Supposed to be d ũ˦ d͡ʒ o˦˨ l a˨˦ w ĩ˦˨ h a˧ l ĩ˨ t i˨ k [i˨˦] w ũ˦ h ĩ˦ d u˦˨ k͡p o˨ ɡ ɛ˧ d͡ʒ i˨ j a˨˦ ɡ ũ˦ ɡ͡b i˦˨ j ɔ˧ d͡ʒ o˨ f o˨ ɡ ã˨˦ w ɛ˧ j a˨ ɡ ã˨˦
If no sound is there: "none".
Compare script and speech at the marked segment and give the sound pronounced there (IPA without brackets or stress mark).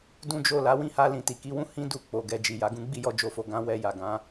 i˨˦